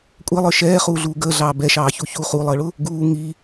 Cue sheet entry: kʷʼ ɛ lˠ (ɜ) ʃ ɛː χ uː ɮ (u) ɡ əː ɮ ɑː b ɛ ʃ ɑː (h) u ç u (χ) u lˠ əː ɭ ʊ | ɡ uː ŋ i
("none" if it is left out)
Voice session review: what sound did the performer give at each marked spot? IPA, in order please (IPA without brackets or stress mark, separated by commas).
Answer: ə˞, uː, ç, χ